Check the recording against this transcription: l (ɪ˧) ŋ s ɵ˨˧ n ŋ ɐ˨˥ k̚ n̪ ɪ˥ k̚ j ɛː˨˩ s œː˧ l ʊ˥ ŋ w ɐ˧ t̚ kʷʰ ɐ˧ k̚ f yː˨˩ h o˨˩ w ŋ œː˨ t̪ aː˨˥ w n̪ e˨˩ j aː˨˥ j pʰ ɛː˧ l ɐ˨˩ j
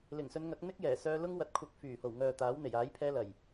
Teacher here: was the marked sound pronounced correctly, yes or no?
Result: no